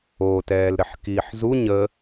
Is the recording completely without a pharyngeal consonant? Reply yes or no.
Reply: no